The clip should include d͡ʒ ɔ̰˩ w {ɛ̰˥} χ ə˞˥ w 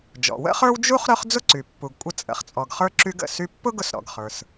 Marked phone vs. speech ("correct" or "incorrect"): incorrect